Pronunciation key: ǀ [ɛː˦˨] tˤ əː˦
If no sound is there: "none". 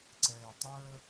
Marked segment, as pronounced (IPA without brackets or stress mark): ɛː˨